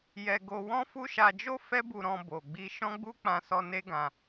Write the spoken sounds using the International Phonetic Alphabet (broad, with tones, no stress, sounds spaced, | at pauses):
j ɛ˧ ɡ o˧ w ɔ̃˦ f u˦ ʃ a˧ d͡ʒ o˦ f ɛ˦ b u˧ ɾ ɔ̃˧ b o˨ ɡ͡b i˧ ʃ ɔ̃˦ ɡ͡b u˦ k͡p ã˧ s ɔ˧ n e˦ ɡ ã˧